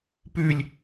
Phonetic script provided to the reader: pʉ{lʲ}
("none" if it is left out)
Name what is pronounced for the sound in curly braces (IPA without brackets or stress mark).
lʲ